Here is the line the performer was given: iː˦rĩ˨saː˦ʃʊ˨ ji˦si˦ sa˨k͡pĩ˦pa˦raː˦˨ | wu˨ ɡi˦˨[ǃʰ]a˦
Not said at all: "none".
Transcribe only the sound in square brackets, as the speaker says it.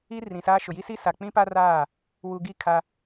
kʰ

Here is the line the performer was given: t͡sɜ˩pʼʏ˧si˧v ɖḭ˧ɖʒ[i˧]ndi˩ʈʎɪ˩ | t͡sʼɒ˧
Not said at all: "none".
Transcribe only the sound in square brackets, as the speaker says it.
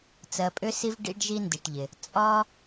i˧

